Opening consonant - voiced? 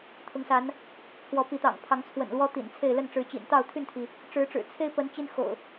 no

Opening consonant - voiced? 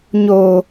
yes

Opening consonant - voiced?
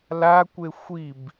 yes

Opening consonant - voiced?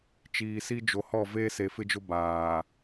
no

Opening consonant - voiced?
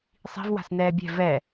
no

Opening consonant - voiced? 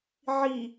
yes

